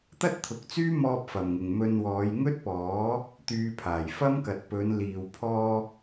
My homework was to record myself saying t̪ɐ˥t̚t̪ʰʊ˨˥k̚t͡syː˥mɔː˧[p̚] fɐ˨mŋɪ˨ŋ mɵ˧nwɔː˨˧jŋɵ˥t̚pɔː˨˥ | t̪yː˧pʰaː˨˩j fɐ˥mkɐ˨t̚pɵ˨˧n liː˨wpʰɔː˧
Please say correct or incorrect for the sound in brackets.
correct